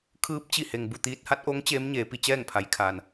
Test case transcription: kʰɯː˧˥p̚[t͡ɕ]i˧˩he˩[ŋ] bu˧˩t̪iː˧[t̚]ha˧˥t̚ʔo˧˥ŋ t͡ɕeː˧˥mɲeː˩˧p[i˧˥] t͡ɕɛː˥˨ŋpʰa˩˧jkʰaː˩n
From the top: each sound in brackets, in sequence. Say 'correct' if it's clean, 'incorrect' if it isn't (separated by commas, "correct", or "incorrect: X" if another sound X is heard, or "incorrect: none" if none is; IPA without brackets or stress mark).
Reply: correct, correct, correct, incorrect: i˩˧